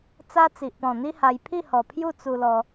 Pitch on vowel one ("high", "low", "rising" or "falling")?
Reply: high